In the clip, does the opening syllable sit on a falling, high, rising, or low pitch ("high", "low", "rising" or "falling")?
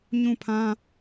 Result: falling